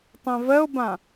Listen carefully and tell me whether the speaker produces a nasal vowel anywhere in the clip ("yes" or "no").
yes